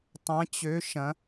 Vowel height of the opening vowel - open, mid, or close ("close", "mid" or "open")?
open